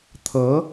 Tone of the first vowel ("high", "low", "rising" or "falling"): rising